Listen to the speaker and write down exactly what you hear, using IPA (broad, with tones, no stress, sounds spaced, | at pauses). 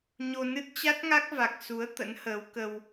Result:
ɲ o˧ n ɨ˦˥ t̚ t͡ɕ a˦˥ t̚ ŋ a˦˥ k̚ v a˨˩ k̚ s u˨˦ ə̯ t̪ ə̰˧˥ n h əː˨˦ w k ə˧ w